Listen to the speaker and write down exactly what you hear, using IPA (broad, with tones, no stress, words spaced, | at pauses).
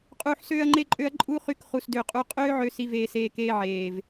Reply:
qʼuː˨ħsøː˧ɐ̯ŋ͡ǃe˧ǃʼø˧ɐ̯ ǃʼu˦χy˧k χu˨sdø˨ qʼu˧ qʼøː˦ʕø˧ si˧veː˧seː˧ keː˧ʕeː˨v